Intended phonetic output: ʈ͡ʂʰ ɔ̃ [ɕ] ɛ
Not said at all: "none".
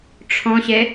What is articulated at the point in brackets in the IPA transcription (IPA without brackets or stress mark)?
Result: ɕ